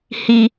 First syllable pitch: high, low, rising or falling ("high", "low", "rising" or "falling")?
high